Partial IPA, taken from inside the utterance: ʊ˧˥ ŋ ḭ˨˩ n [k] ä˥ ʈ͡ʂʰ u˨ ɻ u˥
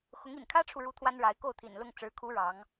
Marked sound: incorrect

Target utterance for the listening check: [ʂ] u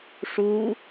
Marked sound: correct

